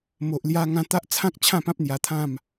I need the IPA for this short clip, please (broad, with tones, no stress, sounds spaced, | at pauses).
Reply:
m o˨ ʔ l j a˧ ŋ ã˧ t̪ a˦ ʔ t͡sʰ ã˦ k̚ t͡ɕʰ ã˥˧ p ã˦ p̚ n̪ j a˧ t̪ʰ ã˥˧ m